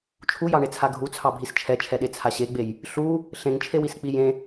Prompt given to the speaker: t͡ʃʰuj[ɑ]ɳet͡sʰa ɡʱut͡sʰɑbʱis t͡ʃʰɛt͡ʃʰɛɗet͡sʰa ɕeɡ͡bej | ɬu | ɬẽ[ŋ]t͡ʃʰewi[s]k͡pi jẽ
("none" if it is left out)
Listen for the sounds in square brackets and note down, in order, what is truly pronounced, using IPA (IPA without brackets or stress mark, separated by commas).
ɑ, ŋ, s